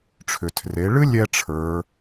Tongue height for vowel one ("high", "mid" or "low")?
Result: high